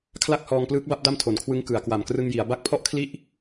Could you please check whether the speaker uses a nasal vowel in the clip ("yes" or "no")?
no